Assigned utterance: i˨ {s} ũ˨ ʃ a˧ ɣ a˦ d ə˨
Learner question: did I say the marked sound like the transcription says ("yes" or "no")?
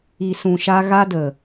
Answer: yes